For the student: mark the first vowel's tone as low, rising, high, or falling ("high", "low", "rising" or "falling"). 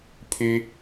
high